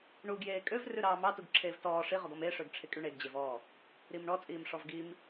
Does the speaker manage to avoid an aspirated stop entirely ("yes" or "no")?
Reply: no